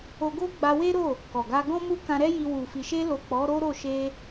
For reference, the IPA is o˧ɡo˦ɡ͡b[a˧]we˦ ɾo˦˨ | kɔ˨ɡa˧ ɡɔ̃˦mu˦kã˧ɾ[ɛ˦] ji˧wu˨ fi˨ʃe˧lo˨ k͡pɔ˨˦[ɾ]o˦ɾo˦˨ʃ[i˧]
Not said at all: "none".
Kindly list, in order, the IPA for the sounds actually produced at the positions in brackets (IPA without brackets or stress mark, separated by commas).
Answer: a˧, ɛ˦, ɾ, e˧